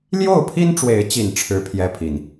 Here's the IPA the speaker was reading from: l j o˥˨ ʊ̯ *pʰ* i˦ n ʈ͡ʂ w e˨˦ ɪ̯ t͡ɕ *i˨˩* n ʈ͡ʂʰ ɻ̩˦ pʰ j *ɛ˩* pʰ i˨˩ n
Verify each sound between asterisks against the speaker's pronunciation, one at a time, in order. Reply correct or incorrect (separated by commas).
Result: correct, correct, incorrect